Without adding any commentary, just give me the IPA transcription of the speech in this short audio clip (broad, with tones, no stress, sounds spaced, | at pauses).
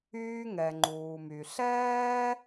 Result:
yː˧ ŋ ɛ˩ ŋ͡ǃ uː˩ m y˩ ɬ ɛː˥